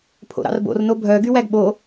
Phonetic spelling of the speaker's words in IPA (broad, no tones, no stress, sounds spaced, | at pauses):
pʰ o̰ ɾ ɑ̰ r b o̰ r n o bʱ œ ɡ y w æ ɡ ɓ o